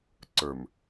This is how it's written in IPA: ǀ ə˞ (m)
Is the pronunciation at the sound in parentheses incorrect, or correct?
correct